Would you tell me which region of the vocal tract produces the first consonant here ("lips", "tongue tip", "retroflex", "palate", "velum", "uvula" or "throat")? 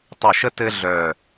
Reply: tongue tip